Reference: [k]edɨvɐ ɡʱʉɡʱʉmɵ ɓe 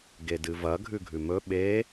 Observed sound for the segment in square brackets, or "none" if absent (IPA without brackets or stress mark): ɡ